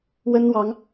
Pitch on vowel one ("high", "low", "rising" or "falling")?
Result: high